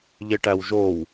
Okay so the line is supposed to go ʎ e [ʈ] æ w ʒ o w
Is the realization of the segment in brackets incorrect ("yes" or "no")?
no